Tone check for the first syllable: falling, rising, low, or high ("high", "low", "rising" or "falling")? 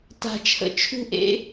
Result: low